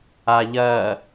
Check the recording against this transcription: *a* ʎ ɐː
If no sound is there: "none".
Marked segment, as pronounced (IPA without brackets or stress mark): a